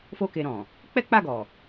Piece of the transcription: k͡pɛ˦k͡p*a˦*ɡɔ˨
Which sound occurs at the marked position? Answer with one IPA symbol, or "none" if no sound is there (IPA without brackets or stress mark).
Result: a˦˨